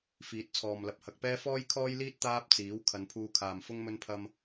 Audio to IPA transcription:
f iː˨˥ t̚ t͡sʰ ɔː˨ m l ɐ˧ p̚ h ɐ˨ k̚ p ɛː˥ f ɔː˥ j kʰ ɔː˥ j l iː˥ t̚ t̪ aː˥ p̚ t͡s iː˨˥ w kʰ ɐ˨˧ n pʰ uː˧ kʰ aː˨ m f ʊ˥ ŋ m ɵ˥ n pʰ ɐ˥ m

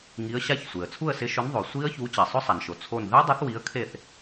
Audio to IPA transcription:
ŋ i˨˥ ə̯ ɕ a˦˥ ç sʷ e˩ ə̯ t͡sʰ u˥˩ ə̯ s ɪ˨˥ ʃ ʊ˨˥ n ðˤ o˩ sʷ i˦˥ ə̯ ç u˨˥ t͡ɕ ɛ˩ sˤ ʊ˦˥ sˤ a˩ n ʃ o˩ t͡sʰ o˥˩ n ð ɛ˦˥ dˤ e˨˥ θ w i˨˥ ə̯ kʰ e˥˩ θ

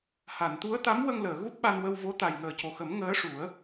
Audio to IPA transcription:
h a˨˩˨ n t̪ u˧˥ ə̯ t̪ a˧˥ m w ə˧ ŋ l əː˨˩˨ ɣ u˦˥ p̚ ɓ a˧ n w ə˧ w v o˧˥ t̪ a˨˩ j ŋ əː˨˩ c o˨˩ x ə˨˩˦ m ŋ əː˧˥ ʂ u˨˩˦ ə̯

